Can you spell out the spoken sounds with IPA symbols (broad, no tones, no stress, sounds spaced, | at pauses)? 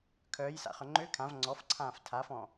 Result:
kʰ œː j s a̰ χ œ ŋ͡ǃ ø kʰ ã v ŋ͡ǀ ɔ f ǀʰ ãː f tʰ a f ɔ̃